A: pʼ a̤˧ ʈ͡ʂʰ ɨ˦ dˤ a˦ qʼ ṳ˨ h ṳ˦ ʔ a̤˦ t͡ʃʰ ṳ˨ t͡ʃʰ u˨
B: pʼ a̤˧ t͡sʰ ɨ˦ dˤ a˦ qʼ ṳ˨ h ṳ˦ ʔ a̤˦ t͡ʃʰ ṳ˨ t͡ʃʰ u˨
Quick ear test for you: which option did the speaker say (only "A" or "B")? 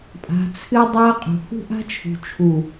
B